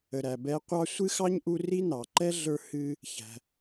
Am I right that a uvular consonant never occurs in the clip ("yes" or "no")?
no